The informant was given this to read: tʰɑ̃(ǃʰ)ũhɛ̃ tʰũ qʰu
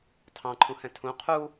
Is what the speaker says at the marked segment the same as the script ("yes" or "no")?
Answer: yes